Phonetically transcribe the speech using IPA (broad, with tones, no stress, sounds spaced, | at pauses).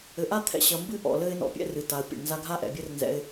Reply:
ɘ˨ ʔ a˦ t̪ʰ ɛ̰˧ ɕ ɐ˧ m b ɨ˦ ʔ ɔ̰˨ l ɘ˦ ɪ̯ n ɔ̰˧ pʲ ɛ̰˦ r ɨ˨ t a˨ ə̯ pʲ ɛ̰˨ ɳ n z a˧ ɡʱ a˦ ʔ ɛ̰˨ bʲ ɘ˦ r n z ɛ̰˧ ɪ̯